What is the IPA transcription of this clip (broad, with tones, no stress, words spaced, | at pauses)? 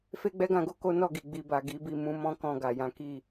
fe˦ɡ͡bɛ˦ɡã˦˨ɡo˧ ko˦ nɔ˦˨ɡi˨ ɡ͡bi˨ba˨ ɡi˨˦bi˦˨ mũ˧mɔ̃˦ kɔ̃˧ɡa˨jã˨˦ ki˦˨